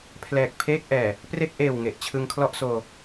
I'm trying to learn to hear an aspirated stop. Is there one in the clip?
yes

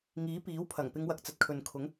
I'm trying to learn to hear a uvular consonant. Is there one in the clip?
no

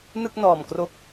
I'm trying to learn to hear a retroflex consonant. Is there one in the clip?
no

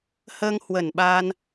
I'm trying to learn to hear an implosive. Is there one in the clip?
yes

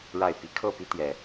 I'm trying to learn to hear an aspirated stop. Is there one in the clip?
yes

